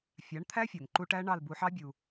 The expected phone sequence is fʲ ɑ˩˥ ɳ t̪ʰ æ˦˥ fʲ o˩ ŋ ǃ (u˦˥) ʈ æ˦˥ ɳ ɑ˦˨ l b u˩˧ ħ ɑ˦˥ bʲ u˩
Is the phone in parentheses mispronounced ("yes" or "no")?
no